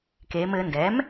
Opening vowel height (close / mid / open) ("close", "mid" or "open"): mid